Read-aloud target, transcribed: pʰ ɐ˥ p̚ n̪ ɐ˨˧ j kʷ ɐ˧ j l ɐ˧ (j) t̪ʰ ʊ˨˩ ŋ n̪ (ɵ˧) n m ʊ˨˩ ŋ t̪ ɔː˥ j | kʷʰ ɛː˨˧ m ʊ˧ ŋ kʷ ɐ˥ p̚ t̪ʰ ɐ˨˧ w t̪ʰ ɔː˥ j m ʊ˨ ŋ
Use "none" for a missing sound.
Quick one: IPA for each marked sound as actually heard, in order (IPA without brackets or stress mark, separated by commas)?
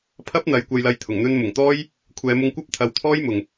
j, ɵ˧